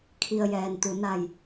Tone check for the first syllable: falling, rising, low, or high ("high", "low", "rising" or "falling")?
low